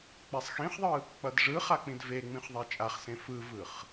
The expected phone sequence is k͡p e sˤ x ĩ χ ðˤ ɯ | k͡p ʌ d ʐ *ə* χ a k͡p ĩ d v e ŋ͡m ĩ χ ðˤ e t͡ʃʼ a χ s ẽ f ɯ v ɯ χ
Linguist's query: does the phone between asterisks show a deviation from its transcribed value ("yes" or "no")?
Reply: yes